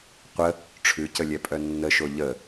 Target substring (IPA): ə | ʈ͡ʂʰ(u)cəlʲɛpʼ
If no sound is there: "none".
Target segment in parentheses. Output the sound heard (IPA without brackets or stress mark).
ʉ